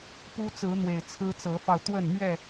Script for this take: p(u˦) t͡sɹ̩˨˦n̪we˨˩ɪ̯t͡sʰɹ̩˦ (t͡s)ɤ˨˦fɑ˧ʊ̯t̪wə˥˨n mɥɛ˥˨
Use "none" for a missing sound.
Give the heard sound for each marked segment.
u˦, t͡s

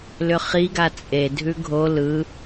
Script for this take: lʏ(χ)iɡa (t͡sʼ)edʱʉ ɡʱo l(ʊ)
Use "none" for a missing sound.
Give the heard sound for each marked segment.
χ, t͡sʼ, ɯ

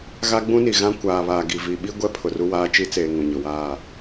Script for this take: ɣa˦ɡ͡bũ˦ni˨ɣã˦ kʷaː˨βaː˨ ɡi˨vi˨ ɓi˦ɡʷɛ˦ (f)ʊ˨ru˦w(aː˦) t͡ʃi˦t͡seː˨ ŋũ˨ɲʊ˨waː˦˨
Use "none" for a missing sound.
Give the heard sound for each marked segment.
pʰ, aː˦

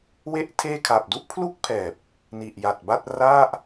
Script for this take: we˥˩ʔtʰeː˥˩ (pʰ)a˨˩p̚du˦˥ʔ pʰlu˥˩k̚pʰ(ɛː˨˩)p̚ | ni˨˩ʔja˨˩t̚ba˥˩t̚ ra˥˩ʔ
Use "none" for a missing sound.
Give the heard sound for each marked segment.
kʰ, ɛː˨˩

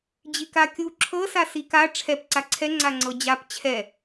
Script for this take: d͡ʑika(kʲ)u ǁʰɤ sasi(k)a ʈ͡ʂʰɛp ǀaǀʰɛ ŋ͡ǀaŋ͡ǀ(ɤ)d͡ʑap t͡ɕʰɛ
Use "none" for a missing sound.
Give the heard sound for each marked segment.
kʲ, k, ɤ

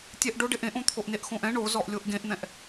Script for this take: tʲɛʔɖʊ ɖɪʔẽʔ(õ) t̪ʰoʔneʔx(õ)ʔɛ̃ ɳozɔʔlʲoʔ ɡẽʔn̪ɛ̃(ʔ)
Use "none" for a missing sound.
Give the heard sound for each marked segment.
õ, õ, ʔ

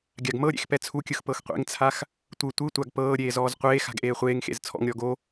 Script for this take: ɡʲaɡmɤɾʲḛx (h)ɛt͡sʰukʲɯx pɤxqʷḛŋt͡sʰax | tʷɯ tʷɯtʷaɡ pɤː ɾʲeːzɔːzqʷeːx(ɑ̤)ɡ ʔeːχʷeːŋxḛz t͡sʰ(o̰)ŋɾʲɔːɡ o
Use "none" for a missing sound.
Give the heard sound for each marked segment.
p, a̤, ɔ̰

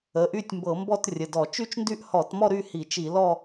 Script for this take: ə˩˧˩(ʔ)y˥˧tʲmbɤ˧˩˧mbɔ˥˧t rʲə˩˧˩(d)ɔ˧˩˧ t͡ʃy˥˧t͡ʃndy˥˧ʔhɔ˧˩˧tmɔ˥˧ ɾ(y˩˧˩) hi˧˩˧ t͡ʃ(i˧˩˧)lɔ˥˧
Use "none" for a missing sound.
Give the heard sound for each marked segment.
ʔ, d, y˥˧, i˧˩˧

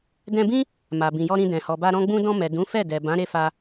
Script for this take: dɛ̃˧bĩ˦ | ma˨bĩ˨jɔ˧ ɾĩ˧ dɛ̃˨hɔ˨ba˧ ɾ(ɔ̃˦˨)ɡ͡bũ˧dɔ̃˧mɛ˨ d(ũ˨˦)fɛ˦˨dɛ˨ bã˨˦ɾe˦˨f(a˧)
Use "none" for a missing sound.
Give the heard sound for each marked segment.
ɔ̃˧, ũ˨˦, a˧

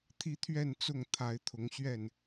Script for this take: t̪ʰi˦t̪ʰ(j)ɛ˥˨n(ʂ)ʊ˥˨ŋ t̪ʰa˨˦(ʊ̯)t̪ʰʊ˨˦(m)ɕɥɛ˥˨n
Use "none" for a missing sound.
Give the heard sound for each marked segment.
ɥ, t͡s, ɪ̯, ŋ

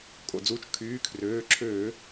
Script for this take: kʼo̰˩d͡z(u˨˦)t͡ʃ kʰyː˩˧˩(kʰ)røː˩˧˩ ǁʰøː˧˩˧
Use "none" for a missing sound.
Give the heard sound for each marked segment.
u˨˦, kʰ

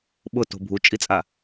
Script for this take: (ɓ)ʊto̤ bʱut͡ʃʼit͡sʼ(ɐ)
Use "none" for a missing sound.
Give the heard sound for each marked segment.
ɓ, a

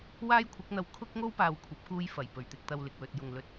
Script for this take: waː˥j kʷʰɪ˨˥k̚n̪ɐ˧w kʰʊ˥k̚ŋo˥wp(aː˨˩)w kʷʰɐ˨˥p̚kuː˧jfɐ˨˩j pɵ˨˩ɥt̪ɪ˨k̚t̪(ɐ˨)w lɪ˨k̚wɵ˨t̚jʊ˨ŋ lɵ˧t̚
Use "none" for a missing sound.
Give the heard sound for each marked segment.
aː˨, ɐ˨

